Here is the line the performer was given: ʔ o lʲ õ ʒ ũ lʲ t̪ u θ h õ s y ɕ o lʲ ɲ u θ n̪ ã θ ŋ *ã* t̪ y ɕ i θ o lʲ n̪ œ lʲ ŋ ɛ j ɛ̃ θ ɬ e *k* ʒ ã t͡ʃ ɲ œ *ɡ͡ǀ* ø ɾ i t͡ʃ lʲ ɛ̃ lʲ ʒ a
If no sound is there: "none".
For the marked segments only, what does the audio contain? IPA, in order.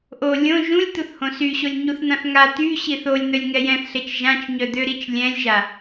a, t͡ʃ, d̪

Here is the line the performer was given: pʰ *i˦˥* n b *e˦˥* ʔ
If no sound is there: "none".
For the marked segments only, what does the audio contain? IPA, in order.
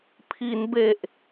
i˩˦, e˨˩

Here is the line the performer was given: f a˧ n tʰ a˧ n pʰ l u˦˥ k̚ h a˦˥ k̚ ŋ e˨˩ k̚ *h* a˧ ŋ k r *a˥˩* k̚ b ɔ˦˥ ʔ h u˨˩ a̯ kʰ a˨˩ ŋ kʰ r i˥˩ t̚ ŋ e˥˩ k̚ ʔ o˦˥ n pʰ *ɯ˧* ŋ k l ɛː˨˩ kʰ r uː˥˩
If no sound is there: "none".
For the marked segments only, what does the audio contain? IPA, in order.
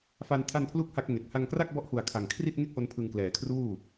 h, a˥˩, ɯ˧

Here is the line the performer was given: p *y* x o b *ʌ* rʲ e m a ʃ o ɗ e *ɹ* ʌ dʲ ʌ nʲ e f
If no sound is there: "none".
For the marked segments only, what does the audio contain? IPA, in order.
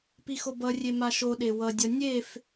i, ʌ, w

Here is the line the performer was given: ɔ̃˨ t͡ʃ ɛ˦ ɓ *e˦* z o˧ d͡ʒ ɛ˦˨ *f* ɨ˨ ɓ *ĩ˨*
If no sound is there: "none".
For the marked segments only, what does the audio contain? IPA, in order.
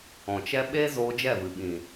e˦, v, ĩ˨

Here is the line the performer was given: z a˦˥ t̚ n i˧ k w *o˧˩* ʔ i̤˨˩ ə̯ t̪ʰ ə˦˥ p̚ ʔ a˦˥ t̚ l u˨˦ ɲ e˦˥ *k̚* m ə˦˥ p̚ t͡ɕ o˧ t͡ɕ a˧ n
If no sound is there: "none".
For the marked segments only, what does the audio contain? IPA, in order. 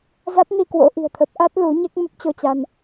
o̰˧˥, k̚

